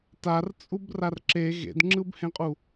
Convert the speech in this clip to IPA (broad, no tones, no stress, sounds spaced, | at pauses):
t a r t͡sʼ u b r a r ǁ e ɣ ḛ d ŋ͡ǁ ɯ b h ẽ qʼ u